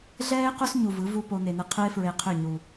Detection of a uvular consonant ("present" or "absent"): present